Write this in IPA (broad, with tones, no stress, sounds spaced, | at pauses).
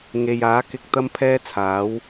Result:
ŋ e˨ j aː˨˥ k ɪ˨ k̚ t̪ ɐ˥ m pʰ ɛː˥ t͡sʰ aː˨˥ w